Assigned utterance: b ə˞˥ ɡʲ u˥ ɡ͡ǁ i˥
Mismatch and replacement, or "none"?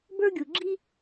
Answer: u˥ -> u˩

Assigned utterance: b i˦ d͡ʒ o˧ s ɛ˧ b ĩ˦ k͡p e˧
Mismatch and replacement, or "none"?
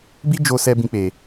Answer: none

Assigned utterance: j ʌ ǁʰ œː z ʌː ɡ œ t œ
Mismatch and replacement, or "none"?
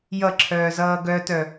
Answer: none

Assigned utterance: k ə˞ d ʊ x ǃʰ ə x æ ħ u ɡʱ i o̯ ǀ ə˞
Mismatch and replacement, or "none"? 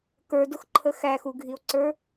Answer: ħ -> x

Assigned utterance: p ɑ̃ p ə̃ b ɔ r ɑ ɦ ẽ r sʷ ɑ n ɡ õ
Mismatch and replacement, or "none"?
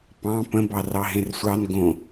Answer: ɔ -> ɑ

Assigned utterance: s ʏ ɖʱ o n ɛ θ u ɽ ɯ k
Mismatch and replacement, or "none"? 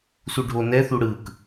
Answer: ʏ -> u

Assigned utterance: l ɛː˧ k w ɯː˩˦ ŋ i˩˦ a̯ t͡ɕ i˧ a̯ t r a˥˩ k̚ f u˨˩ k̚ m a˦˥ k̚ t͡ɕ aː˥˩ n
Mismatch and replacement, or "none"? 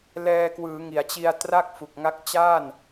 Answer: m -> ŋ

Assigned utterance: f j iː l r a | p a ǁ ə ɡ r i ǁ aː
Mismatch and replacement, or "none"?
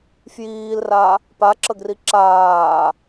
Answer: none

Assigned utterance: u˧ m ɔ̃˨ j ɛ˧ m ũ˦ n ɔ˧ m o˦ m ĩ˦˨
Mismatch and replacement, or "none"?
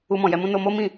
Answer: ɔ˧ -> o˧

